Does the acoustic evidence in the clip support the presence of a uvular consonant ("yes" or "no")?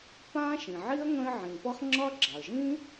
yes